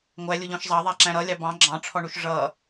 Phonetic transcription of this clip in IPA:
ŋʷæ lʲʊʎɔ̃ʃzˤɑ ðˤæǁæ̃ɾʌ lʲɑbɑ̃ ɡ͡ǁɑ̃ ʈ͡ʂʰɔɳuʃʐʌ

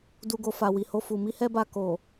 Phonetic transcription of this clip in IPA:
du˨ɡo˨ fa˨wi˨ho˧ fu˨mi˧hɛ˦ba˧ ko˨

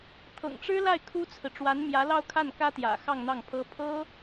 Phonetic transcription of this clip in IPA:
t̪ʰɤ̰˨˩ŋʈ͡ʂɻ̩˥la˥˩ɪ̯ kʰu˥t͡sʰɹ̩˨ ʈ͡ʂwa˧˥nmjä˧˥ lɑ˥˧ʊ̯kʰa˥˩nkä˥t̪jä̰˨˩ xɑ˥˧ŋn̪ɑ˥˩ŋpʰɤ˥ pʰɤ˥

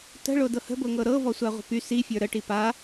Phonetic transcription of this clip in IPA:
tə̤ɭo dɤhə̤bɤŋɤ ɾɤ vɔsʷaʁʷə̤py sifʲə˞ ɾəʈi pa

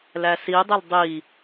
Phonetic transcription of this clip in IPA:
læsidˤɪl dˤi

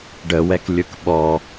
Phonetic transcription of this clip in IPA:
ɖəwɛklʲɯk ɓɔ

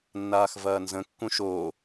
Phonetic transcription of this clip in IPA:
nːaːxvɐːnzə̃ kːũʃoː

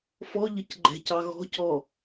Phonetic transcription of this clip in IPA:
fɔʎəc ɡ͡ǃɛ̤cɑ ɣɔ̤cɔ

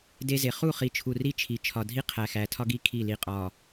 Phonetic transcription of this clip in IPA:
de˦ze˨ χu˦˨χi˨t͡ʃʰu˨ ri˦t͡ʃʰi˨ t͡ʃʰɒ˨dʱi˦qʰæ˨xæ˨ tʰɒ˦ɡi˦ kʰi˦˨ li˨qʼɒ˨

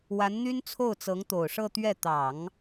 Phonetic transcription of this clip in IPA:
wa˧˥nn̪y˥n t͡sʰo˥˩ʊ̯t͡sɤ˧˥ŋt̪o˨˩ʊ̯ ʂɤ˥˧t̪ɥɛ˥˩ t̪ɑ˨˩˦ŋ

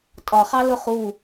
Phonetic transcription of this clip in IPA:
tʼɒχɑ lʊχu

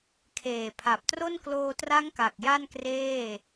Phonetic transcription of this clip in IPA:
kʰeː˨˩pʰa˨˩p̚tro˥˩n kloː˧tra˦˥ŋ ka˨˩k̚ja˥˩nkreː˥˩

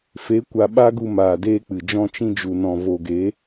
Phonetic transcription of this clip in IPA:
fe˨˦ kʷa˨ ɓa˦ɡu˧maː˨ deː˦k͡pɨ˨ d͡ʒɔ̃˧t͡ʃĩ˧d͡ʒu˨nɔ̃˨ vo˨ɡe˨˦

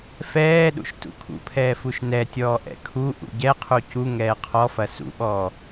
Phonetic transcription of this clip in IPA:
fɛːɗṵʃ tṵkʰṵpʰɛː fuʃnɛtʲɔː ʔɛ̰kʰuʔṵ ɟɛqʰu cu ŋɛːqʰɔfɐ sṵɓɔː

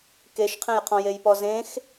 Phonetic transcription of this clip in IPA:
keʃqʰẽjqʰɔ̃ jejpɔzẽx

